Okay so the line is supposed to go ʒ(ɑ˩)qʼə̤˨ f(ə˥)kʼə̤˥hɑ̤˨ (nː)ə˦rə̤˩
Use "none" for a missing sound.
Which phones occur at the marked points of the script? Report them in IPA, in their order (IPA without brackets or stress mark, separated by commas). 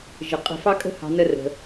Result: ə˩, ɑ˥, n